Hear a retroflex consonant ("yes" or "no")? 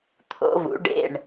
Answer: yes